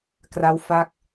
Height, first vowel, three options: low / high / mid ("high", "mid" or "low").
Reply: low